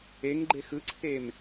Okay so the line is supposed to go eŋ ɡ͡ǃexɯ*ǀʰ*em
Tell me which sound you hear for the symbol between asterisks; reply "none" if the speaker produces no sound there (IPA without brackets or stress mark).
ǀʰ